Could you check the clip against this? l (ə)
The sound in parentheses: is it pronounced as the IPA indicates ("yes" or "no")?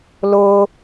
no